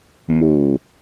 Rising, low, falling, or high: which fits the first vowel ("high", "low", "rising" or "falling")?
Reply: low